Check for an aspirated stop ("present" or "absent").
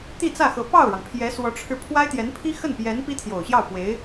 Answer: present